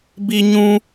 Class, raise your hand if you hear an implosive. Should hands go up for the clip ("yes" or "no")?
no